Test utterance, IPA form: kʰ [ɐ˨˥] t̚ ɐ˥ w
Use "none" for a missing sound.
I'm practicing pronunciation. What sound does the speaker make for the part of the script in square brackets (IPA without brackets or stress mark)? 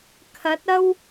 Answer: ɐ˨˥